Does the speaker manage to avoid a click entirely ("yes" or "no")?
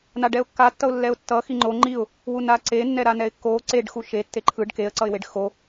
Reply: no